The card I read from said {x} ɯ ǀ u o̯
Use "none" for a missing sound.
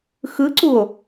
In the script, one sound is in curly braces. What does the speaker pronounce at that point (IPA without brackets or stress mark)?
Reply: x